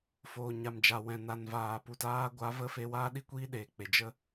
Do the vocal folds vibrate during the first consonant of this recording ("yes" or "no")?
no